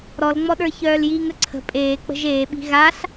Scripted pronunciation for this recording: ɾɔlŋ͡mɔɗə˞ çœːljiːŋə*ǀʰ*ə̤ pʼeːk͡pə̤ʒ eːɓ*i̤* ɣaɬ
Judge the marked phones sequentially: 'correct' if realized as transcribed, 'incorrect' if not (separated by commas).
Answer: correct, correct